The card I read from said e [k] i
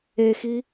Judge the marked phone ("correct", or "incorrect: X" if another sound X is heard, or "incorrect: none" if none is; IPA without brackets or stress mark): incorrect: x